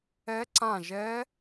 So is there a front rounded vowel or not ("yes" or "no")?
no